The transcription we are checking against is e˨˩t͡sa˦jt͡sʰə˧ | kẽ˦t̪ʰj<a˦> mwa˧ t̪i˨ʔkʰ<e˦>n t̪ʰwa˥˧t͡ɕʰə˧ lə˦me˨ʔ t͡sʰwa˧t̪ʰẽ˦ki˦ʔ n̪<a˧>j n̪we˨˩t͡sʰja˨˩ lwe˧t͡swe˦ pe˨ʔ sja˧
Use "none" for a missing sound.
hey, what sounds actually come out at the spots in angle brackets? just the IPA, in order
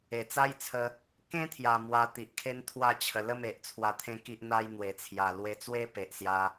a˨˩, e˦, a˧

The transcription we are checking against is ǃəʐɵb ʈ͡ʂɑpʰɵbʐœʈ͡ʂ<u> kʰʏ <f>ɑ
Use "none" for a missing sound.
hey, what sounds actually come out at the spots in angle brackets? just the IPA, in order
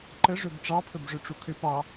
u, p

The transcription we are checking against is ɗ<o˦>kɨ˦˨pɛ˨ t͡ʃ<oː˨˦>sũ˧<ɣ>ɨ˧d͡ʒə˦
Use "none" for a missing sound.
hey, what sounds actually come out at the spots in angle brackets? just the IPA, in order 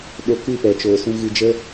o˧, oː˨, ɣ

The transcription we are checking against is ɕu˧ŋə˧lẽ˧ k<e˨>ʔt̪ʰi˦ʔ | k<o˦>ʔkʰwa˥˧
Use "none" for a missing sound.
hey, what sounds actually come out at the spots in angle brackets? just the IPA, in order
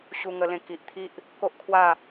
i˨, o˦

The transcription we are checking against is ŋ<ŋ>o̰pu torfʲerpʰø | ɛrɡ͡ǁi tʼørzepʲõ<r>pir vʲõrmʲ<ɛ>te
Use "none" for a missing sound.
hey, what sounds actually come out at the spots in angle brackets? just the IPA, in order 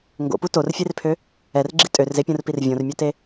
ɡ, r, œ

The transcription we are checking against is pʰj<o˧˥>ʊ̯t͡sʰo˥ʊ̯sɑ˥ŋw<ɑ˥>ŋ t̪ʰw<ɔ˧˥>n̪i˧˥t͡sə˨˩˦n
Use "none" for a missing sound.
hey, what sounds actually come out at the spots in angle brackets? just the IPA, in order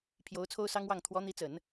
o˧˥, ɑ˥˩, ɔ˧˥

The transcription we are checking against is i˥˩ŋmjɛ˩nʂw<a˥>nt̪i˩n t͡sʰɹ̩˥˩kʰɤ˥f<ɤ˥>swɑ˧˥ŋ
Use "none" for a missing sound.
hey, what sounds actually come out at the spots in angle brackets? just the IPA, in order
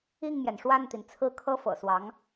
a˥˩, ɤ̰˨˩

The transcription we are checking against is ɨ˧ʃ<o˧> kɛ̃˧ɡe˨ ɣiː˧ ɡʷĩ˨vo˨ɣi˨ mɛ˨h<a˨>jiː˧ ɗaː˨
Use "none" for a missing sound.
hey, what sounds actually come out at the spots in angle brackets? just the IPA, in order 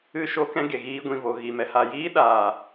o˧, a˨

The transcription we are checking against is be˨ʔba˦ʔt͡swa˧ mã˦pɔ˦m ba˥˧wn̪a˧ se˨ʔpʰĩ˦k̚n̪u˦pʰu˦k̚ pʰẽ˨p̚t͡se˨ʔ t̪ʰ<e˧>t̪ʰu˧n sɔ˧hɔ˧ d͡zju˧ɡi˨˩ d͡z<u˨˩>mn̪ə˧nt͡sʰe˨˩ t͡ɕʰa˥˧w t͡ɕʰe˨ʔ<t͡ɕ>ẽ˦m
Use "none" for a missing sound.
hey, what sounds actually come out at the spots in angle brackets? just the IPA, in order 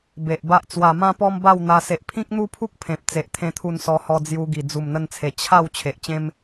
ẽ˧, u˨˩, t͡ɕ

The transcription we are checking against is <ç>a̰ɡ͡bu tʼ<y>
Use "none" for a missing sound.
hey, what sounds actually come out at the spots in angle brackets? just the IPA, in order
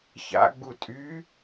ç, y

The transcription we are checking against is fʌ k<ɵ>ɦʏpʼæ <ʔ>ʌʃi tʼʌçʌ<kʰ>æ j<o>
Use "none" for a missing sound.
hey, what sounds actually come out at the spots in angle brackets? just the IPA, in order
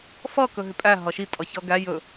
ɵ, ɦ, ɡ, ɵ

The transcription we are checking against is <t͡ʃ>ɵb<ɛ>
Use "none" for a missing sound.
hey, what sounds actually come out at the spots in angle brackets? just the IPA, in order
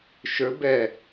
ʃ, ɛ

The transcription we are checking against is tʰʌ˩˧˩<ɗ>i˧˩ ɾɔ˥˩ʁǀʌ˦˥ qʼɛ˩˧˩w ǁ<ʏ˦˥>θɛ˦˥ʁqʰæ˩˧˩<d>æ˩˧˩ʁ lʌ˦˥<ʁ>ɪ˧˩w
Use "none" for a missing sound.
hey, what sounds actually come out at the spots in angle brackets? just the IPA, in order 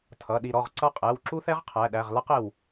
ɗ, u˦˥, ɗ, q

